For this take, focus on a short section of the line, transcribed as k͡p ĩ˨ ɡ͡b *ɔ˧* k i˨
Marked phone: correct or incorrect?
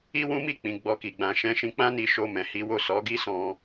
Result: correct